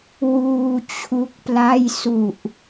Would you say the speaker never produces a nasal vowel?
yes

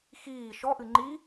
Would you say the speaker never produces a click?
no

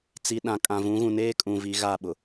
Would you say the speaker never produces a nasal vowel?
no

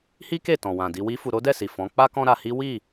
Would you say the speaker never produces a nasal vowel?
no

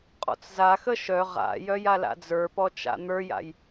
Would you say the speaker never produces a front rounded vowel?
no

